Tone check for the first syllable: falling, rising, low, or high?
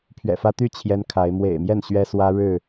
low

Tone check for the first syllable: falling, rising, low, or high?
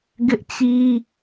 high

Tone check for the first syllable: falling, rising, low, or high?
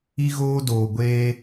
high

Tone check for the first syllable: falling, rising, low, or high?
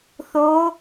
rising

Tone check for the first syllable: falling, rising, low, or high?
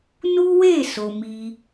high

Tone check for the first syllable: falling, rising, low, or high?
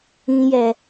low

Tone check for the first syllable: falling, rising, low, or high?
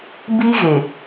high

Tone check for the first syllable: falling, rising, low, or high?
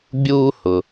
high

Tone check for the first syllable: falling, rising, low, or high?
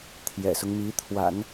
low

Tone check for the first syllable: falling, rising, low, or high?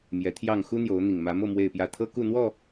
rising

